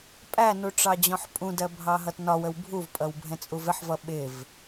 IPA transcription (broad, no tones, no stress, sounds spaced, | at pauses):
pʼ æ n u ʈ͡ʂ ɑ d͡ʑ ɔ̃ ħ pʼ ũ d ɜ bʱ ɑ ɦ ʌ t n ɒ w ə w bʱ u v pʼ ʌ w bʱ ɛ̃ t͡sʼ u v ɪ ħ v ʌ ɓ ɪ v